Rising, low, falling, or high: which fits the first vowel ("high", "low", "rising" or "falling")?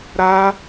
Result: high